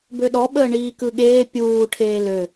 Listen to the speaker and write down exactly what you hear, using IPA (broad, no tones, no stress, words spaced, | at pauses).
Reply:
bøɗɔ ɓəːɳiːkɯɠeː pʲuː ʈʰeːlø